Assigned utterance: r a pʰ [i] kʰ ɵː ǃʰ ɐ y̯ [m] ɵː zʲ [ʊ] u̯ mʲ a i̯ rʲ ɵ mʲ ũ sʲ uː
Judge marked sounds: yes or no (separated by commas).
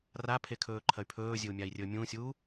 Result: no, no, no